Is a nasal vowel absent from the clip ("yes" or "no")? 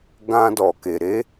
no